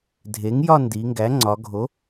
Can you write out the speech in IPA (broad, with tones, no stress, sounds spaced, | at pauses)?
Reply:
dʱ e˩˥ ŋ j ɒ˥˧ n d i˩˧ ŋ ɡ æ˩˥ ŋ͡ǀ ɒ˩˧ ɡʱ o˩˥